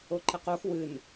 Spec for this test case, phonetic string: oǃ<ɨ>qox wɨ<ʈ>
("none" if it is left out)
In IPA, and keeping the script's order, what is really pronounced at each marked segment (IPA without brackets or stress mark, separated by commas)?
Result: ɛ, n